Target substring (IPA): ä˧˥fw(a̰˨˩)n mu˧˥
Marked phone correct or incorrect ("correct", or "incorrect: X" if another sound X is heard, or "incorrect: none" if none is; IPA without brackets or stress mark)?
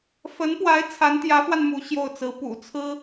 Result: incorrect: a˧